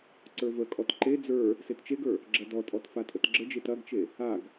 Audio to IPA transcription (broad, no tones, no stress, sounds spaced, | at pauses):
ǀ ə˞ v ə kʼ ɔ t ǃ e d͡z ə˞ | s e t t͡ʃ e ɡ ə˞ | ɡ͡ǁ ɐ d ɔ tʼ ɔ t f a tʼ ə t ɡ͡ǁ ə d͡ʒ e t ɐ ɡ t͡ʃ e | a ɡ